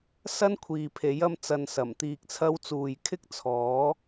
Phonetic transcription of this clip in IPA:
s ɐ˥ n kʷʰ iː˨ pʰ e˨˥ j ɐ˧ m t͡s ɐ˨ n s ɐ˨˩ m t̪ iː˨ k̚ t͡sʰ ɐ˧ w t͡s uː˨ j kʰ ɪ˥ k̚ t͡sʰ ɔː˨˥

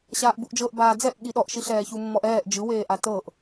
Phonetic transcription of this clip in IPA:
ɕ aː ʔ b u ʔ d͡ʒ ɤ ʔ b aː d͡z ɛ ʔ ɠ i ɗ ɔ ʔ ʃ i ɬ ɛː ç u mː ɔ ʔ ɛː ʔ d͡ʒ ɯ w eː ʔ a t ɤ ʔ

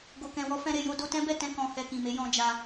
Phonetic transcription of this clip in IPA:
ɡ o˨ k ɛ̃˨ w ɔ˨˦ f ɛ̃˧ ɾ e˨ j o˧ d o˧ t ɛ̃˦ b ɛ˦˨ t ɛ̃˧ k ɔ̃˨ h ɛ˨ k ĩ˨ m e˨˦ j ɔ̃˧ d͡ʒ a˧

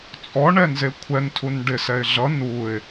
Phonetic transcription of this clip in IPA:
t͡sʼ ɔ ɳ ɛ n z e kʷʰ ɛ n tʰ u n ɖ ɪ s ɛ ɪ̯ ɮ ʌ n u ɪ̯

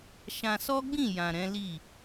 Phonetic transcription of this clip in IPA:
ʃ ã˧ s ɔ˦ ɡ͡b ĩ˦˨ j ã˨ ɾ ɛ̃˨˦ l i˦˨

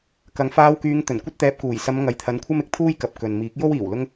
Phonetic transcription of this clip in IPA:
k ɐ˨ ŋ f aː˧ w k yː˨˧ ŋ t̪ ɵ˨˩ n kʷ ɐ˥ t̚ t̪ ɛː˧ p̚ k uː˨˩ j s ɐ˨˧ m ŋ ɐ˨ j t̪ʰ ɐ˧ n kʷʰ ɐ˥ m ɪ˨ k̚ t̪ʰ uː˥ j k ɐ˨˥ p̚ k ɵ˨ n m iː˨˥ k̚ j o˥ w iː˨˩ w l ʊ˥ ŋ

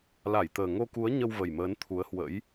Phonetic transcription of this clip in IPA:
l a˧˩ j t̪ əː˨˩ ŋ o˧ k u˨˦ ə̯ ɲ ə˧ w v ə˨˩ j m əː˨˦ n t̪ʰ u˨˦ ə̯ h w ə̰˧˥ j

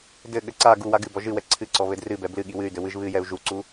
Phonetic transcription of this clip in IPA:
d ɘ ɠ ɘ ǀ a ɡ u w a ɡ ɨ b ɔ ʒ ɨ w ɛ ǀʰ ɨ ǀ ɔ β ɘ d r ɨ b ɛ b l ɨ ɠ i w ɨ y̯ d ɘ w ɨ ʒ β ɨ j ɛ u̯ ʒ u ǀ u

